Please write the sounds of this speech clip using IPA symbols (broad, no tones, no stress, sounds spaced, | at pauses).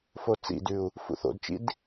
f o t͡s ḭ d ʉ u̯ | f ṵ θ o̰ d t͡ʃ ḭ d